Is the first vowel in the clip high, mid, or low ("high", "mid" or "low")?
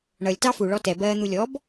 mid